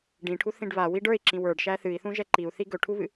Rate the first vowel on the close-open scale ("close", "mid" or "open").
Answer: close